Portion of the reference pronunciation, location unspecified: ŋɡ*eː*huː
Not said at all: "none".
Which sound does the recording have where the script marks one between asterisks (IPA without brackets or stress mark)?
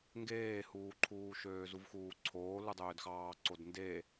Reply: eː